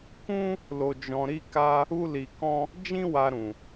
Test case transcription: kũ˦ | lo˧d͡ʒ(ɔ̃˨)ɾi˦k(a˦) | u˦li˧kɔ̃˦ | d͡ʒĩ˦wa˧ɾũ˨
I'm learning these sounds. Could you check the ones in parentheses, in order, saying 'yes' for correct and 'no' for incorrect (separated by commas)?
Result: no, yes